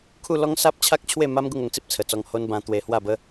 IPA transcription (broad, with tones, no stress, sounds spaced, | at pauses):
kʰ u˥˧ l ɔ˦ ŋ s a˦ p̚ t͡ɕʰ a˦ k̚ t͡ɕʰ w e˥˧ m a˦ m ɡ u˥˧ ŋ o˧ ŋ t͡s i˦ p̚ t͡sʰ ə˨˩ t͡s ɔ˧ ŋ h o˦ n b ã˧ t̪ w e˧ h w a˥˧ b ə˦